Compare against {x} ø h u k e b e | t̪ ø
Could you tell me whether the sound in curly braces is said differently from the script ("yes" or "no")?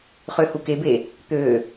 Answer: yes